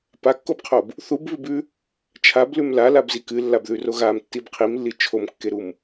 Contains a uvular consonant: yes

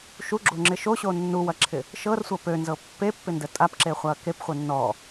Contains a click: yes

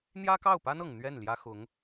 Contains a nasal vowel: no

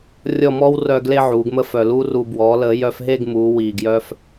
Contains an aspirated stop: no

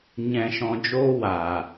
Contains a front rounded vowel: no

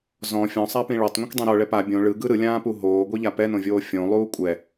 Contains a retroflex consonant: yes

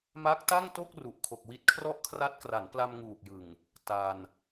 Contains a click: no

